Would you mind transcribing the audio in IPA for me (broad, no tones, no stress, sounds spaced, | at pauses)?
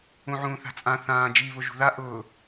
ũ ʕ ũː θ a̤ t͡sʼ ã θ ãː d͡ʒ i β ʊ ʒ ṳ ð a ʔ ʊː